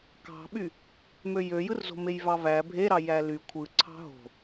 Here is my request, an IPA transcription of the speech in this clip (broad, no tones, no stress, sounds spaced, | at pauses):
k ɑ̤ ɓ y | m ø j ø j ɯ r z o̤ m e j v ɑ v æ bʱ e ɾ ɑ j æ l y kʷʰ ɯ ǀʰ ɑ̤ ɦ o̤